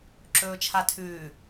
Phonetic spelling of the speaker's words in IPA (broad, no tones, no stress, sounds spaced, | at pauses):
ǁ ɵː t͡ʃʰ a tʰ ʉː